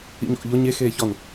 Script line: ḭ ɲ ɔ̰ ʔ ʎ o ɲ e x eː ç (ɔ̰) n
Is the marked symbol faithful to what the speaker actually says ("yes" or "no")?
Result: no